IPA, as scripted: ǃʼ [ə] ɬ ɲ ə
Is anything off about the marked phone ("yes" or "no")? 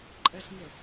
yes